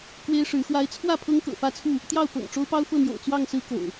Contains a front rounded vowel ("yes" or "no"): no